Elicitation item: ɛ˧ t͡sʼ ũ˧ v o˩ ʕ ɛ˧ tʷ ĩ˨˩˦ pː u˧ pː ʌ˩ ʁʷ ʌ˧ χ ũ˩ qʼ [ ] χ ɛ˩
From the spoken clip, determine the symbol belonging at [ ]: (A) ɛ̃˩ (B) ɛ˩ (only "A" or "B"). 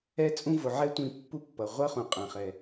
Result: A